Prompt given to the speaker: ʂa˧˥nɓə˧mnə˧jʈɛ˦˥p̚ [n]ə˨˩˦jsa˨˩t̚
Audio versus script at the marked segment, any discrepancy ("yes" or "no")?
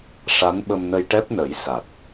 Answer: no